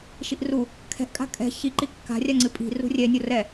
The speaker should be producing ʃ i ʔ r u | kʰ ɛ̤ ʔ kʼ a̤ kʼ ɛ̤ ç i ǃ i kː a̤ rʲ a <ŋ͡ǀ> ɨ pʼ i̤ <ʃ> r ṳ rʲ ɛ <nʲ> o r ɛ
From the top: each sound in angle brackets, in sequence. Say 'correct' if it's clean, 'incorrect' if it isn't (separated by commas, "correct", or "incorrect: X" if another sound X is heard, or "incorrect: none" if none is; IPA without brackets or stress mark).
correct, incorrect: none, correct